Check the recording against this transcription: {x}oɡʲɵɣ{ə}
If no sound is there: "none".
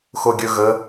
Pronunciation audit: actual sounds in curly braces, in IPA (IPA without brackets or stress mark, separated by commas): x, ə